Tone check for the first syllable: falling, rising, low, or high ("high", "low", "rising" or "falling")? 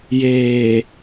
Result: low